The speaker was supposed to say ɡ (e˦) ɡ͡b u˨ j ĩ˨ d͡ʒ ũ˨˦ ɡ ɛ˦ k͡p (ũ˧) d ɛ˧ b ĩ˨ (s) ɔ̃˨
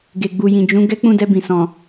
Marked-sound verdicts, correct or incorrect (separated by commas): incorrect, incorrect, correct